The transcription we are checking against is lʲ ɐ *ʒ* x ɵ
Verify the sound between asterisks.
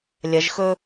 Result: correct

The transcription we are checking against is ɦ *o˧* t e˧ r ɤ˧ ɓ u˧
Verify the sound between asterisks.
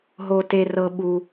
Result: correct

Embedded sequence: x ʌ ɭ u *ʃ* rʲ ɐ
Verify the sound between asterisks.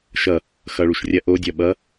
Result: correct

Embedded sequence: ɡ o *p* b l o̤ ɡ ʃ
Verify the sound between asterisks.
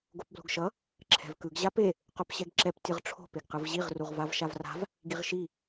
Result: correct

